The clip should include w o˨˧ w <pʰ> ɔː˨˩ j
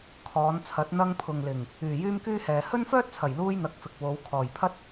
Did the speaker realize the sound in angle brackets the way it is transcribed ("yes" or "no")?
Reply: no